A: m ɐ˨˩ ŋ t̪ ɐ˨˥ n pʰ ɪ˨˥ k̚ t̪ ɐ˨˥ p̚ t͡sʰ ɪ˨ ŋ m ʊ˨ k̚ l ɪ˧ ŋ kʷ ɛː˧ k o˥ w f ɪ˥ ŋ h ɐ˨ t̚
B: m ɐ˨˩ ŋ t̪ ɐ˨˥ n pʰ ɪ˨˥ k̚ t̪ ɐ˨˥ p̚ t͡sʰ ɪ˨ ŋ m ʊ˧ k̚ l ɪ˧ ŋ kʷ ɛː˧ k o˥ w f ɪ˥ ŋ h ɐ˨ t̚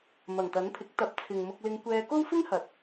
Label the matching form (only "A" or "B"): B